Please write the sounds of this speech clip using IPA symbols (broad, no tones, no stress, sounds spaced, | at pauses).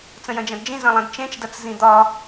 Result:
t͡s ə̃ j ɐ̃ d͡ʒ ɐ̃ d d͡ʒ ĩ z ɐ̃ lˠ ɐ̃ d t͡ʃ ẽ t͡ʃ d ɐ t͡s z ĩ d̪ ɒ